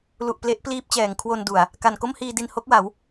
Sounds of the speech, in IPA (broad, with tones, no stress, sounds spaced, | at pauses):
l u˨˩ ʔ p l e˦˥ ʔ p l iː˦˥ p̚ t͡ɕ ɛː˩˦ ŋ kʰ w o˧ n d u˨˩ a̯ | k a˨˩ n k o˥˩ m h iː˧ d i˧ n h o˦˥ k̚ w a˩˦ w